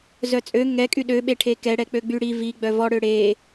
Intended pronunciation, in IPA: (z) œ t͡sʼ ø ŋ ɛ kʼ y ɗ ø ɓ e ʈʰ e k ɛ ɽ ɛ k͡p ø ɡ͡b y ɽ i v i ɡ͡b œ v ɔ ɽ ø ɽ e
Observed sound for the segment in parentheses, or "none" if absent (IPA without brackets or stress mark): z